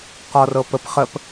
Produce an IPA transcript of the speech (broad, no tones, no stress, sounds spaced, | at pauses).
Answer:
q ɔ r ɤ p ə p χ ə p